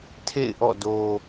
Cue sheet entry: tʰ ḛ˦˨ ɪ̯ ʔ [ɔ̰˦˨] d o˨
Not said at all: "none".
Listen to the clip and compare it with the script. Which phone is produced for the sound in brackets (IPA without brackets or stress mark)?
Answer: ɔ̰˦˨